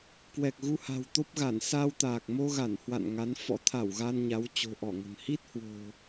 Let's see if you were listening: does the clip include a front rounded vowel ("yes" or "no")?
no